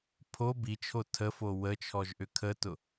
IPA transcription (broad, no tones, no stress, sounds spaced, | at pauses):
pʰ o b i t͡ʃʰ o tʰ ə f o w ə t͡ʃʰ ɔ ʒ ʔ ʏ kʰ ə t ʊ